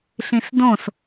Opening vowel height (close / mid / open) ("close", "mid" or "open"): close